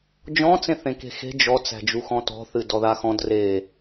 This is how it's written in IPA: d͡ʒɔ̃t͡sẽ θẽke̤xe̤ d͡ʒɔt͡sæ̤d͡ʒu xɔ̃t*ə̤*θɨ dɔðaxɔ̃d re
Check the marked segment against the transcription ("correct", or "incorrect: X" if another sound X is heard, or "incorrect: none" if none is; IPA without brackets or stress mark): incorrect: ɔ̤